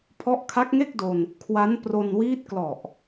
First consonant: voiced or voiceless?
voiceless